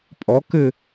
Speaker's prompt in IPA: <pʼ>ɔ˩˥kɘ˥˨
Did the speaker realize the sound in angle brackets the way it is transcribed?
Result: yes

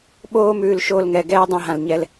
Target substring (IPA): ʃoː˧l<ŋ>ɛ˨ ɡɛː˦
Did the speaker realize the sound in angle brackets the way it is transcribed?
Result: yes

